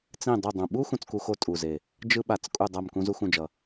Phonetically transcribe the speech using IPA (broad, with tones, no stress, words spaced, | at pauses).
t͡sĩ˦˨ dˤu˦˨dˤũ˨˩ ɓu˥ xũ˥t͡sku˥ xo˥tʼu˨˩ze˨˩ | d͡ʒɯ˥ɓa˨˩t͡s kʼu˦˨dˤa˦˨m kũ˥zu˥xũ˦˨d͡ʒʌ˨˩